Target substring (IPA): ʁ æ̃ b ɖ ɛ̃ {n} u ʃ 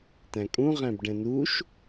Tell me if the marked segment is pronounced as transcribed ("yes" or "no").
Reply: yes